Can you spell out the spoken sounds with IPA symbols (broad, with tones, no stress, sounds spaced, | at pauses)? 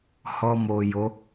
h ɔ˧ m o˨ j o˨˦